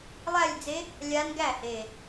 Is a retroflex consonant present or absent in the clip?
absent